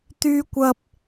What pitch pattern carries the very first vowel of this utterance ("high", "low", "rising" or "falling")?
high